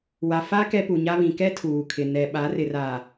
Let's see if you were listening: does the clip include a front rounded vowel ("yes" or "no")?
no